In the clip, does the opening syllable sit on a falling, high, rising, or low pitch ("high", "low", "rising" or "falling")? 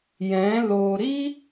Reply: rising